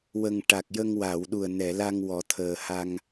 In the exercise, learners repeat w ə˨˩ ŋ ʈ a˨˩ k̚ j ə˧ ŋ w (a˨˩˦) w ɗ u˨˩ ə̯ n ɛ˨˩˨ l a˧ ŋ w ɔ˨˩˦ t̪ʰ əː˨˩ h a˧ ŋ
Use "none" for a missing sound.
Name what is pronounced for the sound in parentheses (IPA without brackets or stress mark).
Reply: a˨˩˨